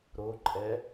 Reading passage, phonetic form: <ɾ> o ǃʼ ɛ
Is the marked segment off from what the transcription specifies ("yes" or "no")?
no